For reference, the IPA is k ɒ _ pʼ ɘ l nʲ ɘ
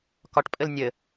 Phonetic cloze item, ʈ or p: ʈ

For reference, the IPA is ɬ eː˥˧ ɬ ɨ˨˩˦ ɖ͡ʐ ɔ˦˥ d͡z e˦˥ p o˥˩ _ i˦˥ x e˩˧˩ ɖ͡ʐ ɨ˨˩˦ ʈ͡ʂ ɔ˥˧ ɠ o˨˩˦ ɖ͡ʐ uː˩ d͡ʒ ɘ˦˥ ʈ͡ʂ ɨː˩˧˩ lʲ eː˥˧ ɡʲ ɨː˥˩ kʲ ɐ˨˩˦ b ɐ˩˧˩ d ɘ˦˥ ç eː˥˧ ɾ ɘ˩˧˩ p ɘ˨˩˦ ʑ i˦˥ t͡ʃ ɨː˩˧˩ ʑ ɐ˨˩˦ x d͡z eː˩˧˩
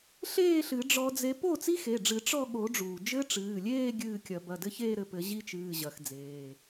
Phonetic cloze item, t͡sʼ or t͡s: t͡s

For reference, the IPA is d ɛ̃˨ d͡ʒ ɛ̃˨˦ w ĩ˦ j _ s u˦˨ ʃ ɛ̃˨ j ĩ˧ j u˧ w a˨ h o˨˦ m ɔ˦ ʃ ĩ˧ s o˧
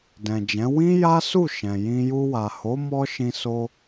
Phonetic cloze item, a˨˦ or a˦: a˦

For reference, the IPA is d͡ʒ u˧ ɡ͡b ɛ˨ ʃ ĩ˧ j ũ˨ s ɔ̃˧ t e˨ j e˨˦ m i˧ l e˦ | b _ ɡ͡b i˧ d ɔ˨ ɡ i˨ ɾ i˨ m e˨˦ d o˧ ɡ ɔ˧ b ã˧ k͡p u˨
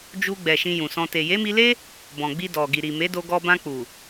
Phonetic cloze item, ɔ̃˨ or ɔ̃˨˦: ɔ̃˨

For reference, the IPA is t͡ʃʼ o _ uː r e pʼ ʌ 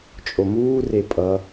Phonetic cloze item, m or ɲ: m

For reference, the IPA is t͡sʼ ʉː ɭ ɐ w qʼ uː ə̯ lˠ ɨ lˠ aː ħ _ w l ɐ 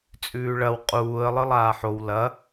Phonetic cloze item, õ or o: o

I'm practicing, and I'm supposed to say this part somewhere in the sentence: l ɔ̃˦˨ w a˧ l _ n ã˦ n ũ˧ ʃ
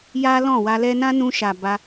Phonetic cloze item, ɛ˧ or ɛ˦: ɛ˦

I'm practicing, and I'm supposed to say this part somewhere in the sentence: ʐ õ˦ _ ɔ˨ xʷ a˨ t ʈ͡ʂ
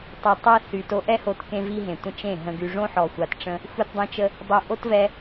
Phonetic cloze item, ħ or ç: ħ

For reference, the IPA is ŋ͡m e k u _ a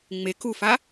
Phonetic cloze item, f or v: f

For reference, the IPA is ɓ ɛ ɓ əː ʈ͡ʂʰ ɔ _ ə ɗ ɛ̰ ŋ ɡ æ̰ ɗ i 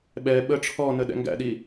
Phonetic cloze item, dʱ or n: n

